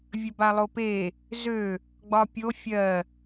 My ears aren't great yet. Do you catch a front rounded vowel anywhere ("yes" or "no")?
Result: yes